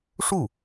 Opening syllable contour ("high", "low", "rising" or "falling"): falling